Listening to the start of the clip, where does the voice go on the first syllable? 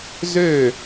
falling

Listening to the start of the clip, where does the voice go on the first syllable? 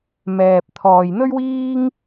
low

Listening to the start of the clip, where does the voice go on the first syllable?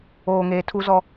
low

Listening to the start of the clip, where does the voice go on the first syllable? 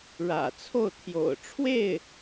low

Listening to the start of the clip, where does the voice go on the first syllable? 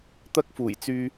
high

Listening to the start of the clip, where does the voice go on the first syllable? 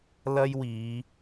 high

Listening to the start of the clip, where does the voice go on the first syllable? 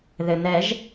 low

